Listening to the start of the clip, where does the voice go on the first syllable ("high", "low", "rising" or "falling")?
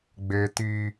high